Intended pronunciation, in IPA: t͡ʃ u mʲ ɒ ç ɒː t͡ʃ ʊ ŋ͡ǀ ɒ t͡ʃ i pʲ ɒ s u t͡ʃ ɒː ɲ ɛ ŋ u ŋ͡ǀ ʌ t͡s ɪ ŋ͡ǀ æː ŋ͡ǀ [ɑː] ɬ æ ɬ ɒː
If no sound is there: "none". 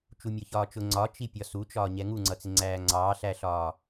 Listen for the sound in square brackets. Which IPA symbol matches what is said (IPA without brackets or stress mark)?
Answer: ɑː